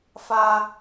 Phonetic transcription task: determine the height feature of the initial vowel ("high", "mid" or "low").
low